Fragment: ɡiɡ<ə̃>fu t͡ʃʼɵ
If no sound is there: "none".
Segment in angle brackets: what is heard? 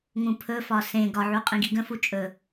ə̃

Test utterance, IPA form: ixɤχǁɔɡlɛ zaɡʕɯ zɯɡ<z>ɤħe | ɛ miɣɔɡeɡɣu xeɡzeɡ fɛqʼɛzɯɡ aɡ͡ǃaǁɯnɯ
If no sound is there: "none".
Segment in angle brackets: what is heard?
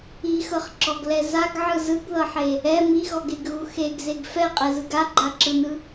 ð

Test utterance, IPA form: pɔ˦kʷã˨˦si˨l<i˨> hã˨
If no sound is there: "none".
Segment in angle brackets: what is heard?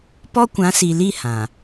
i˦˨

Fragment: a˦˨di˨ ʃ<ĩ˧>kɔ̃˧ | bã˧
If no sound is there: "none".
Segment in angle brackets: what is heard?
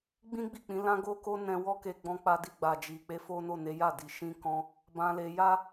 ĩ˧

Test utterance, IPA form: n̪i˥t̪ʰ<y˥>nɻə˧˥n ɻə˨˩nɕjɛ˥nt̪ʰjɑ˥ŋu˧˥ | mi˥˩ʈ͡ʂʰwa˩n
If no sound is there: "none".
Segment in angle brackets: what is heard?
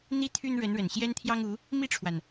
y˥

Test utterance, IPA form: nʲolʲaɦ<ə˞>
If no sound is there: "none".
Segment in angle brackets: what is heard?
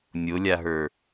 ə˞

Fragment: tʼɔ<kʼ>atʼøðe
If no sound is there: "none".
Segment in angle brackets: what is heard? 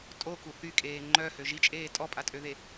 pʼ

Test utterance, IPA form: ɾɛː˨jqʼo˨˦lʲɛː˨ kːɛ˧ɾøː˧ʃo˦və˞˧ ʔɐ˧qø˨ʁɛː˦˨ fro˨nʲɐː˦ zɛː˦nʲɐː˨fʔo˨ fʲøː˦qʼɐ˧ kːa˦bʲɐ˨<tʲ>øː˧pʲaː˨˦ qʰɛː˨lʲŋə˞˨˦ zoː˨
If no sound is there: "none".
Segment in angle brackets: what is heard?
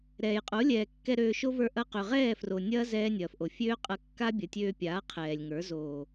tʲ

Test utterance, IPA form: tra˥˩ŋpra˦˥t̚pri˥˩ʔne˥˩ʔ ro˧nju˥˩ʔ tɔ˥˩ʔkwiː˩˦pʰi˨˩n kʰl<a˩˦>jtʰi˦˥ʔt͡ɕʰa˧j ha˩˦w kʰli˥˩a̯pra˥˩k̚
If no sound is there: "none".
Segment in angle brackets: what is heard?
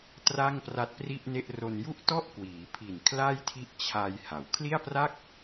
a˥˩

